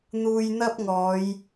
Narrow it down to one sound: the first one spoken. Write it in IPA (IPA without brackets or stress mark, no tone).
n̪